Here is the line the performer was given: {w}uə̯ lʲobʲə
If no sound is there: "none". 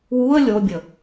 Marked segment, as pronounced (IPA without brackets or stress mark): w